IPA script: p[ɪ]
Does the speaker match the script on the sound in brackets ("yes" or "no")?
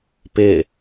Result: yes